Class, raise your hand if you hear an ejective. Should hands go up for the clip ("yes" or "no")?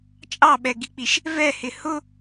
yes